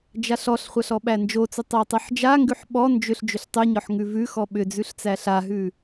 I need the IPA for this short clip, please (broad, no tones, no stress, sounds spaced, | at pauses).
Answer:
d͡ʒ a ɬ ɔ ɬ χʷ a ɬ ɔ ɓ æ n d͡ʒ o t͡s ʏ tˤ æ tˤ ɯ ħ d͡ʒ a ŋ ɡ ʉ ħ ɓ ɔ n d͡ʒ ʏ ɬ d͡ʒ ʏ ɬ tˤ ʉ ɲ ɔ ħ ŋ ʉ v ʉ x ɔ ɓ ʏ d͡z ʉ ɬ t͡s æ ɬ a ɦ ʉ